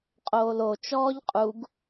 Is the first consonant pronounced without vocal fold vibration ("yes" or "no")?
yes